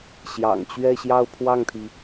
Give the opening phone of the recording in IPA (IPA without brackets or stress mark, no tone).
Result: ɕ